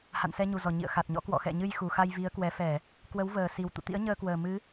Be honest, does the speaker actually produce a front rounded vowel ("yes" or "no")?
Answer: no